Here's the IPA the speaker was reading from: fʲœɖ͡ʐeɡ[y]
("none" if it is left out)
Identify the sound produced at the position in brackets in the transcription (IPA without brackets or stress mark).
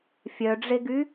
y